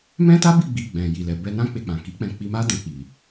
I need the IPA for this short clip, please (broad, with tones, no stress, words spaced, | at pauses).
mɛ̃˦ta˦bi˦˨ ɡ͡bi˧ɡ͡bɛ̃˨ ji˨lɛ˨ bɛ˧nã˦ k͡pe˧k͡pã˨ki˨˦k͡pɛ̃˧ k͡pi˧ma˦ dɛ̃˧ k͡pi˨